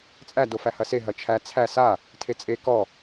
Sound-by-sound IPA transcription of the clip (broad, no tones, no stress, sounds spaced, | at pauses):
t͡sʼ æ d o f æ h ɐ s e ɦ ɐ t͡ʃʰ æ t͡sʰ æ s a | tʰ e t͡sʼ e k ɔ